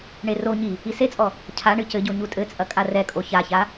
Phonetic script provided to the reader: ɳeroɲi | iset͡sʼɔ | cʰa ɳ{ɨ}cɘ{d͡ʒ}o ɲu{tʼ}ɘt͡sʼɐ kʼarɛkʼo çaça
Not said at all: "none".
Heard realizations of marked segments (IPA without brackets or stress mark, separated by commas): ɨ, ɟ, tʼ